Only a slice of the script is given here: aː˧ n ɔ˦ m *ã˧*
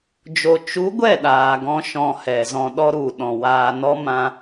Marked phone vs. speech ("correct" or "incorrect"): correct